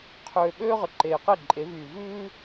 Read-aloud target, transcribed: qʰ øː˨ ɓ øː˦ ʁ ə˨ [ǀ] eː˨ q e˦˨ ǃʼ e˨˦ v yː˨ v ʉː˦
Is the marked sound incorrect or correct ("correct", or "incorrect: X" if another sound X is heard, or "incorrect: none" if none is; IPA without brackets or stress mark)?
incorrect: ǃ